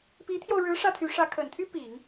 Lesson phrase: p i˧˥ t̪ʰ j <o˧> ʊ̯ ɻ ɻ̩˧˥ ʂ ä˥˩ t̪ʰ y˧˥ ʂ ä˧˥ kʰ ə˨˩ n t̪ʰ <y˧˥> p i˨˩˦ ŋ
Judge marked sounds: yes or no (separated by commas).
yes, no